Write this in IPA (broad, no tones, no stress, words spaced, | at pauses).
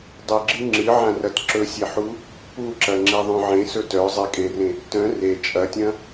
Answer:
dˤɨɡ͡ǁɨ ŋ͡ǁɨʕã rɐtǁɵsʲeħu | puǁɐ ŋ͡ǁeðˤœ̃ʕẽsɵ tœ zˤekʼerẽ | tœ̃ re t͡ʃʼɐtʲɐ̃